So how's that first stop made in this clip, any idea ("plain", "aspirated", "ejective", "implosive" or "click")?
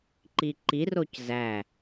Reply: click